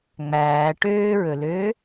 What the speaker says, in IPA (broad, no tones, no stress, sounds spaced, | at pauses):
ŋ͡m æː ʈ øː ɹ ɵ l øː